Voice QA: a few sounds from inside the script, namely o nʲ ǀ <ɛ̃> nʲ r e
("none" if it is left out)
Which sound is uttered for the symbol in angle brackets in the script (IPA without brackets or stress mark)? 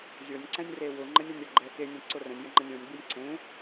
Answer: ɛ̃